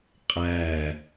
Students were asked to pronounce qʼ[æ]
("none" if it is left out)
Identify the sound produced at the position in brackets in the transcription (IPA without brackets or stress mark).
æ